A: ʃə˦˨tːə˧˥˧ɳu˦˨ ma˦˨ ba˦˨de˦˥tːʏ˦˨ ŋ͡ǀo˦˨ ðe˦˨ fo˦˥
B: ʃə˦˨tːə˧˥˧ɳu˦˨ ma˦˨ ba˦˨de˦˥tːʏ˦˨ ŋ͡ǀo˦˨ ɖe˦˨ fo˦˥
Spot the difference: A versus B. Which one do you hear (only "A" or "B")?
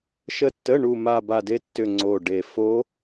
B